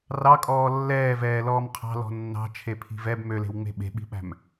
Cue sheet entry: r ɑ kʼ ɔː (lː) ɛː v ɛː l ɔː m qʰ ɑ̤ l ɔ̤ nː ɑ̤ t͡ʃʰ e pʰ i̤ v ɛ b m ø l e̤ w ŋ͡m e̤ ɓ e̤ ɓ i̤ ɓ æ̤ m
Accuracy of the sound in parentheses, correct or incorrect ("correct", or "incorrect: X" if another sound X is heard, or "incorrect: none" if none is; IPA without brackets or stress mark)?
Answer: correct